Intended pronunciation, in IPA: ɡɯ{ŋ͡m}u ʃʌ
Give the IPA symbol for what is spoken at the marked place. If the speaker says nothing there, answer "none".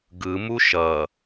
m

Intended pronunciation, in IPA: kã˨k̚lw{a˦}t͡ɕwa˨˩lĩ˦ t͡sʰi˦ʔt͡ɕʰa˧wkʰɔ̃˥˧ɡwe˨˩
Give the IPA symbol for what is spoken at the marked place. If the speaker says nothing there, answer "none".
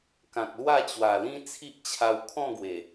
a˥˧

